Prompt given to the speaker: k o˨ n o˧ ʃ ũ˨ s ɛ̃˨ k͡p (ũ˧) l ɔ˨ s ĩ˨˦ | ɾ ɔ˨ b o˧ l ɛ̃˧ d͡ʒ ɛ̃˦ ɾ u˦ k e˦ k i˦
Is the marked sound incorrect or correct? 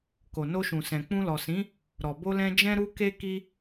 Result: correct